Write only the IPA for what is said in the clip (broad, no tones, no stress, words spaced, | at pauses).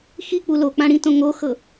xik͡pu lok͡pãɽĩtõ ŋoxɤ